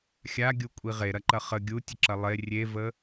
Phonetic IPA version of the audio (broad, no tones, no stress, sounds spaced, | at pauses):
xʲ a ɡʲ u kʷʼ i ʁ e ɾ ɐ ǃ ɐ χ ə ɡʲ u tʲ ə ǁ ɐ lˠ e rʲ e v ə